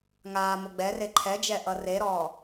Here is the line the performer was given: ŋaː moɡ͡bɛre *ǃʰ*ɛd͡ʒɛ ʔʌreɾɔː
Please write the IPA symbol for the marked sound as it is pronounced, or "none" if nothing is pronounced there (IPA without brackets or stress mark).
ǃʰ